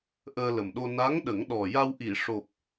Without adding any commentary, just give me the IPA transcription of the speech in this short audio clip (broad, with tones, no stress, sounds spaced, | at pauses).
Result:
ʔ əː˧ l ə˨˩ m ɗ o˧ n a˧˥ ŋ ɗ ə˨˩˦ ŋ ɗ ɔ˨˩ j a˧ w ʔ i˨˩˨ ʂ o˨˩ p̚